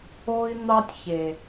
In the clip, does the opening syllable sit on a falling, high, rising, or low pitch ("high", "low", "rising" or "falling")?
high